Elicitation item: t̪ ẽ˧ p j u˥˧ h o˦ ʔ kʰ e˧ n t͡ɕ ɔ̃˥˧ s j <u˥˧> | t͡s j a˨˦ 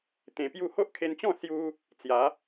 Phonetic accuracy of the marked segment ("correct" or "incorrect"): incorrect